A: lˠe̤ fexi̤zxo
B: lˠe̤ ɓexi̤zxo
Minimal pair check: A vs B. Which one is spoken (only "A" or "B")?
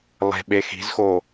B